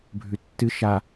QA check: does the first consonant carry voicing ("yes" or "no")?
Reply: yes